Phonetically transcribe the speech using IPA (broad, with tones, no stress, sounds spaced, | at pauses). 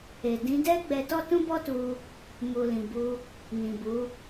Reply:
e˨ d ĩ˨˦ d ɛ˦ ɡ͡b ɛ˧ t ɔ˦ t ũ˦ b ɔ˦ t u˧ | m u˨ l ĩ˨ b u˧ | n ĩ˨ b u˨˦